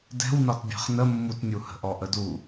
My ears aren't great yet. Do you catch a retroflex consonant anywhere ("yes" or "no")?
no